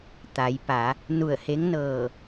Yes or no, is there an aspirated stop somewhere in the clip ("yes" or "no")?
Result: no